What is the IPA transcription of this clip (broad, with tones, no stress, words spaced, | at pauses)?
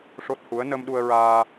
ʂo˦˥t̚hu˧˥ə̯ nə˧mɗu˧ə̯ɹaː˧